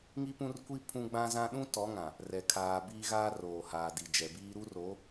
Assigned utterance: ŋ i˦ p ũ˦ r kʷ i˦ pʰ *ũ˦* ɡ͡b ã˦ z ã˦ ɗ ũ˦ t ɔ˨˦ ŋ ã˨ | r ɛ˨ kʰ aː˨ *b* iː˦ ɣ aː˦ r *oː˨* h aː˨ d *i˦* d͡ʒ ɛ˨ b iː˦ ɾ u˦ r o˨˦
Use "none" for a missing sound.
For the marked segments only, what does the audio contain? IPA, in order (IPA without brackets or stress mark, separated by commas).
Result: ũ˦, b, oː˨, i˨